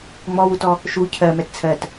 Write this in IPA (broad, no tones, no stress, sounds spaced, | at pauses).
ŋ͡m ɔ w u t ɔ | ʃ u cʰ ɜ m ɛ t t͡sʰ ɜ t